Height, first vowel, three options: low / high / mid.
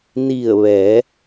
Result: high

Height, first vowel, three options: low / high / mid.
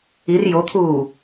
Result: high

